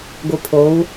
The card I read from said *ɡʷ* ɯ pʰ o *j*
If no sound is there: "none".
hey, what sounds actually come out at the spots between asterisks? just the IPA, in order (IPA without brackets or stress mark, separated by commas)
ɡʷ, w